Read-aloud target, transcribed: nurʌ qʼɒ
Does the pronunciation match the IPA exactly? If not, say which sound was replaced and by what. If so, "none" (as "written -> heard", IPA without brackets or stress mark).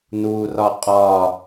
ʌ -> ɒ